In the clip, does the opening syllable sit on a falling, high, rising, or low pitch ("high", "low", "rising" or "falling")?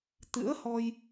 rising